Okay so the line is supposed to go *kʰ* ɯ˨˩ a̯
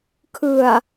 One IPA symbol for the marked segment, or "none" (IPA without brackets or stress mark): kʰ